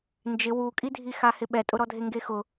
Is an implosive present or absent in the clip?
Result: present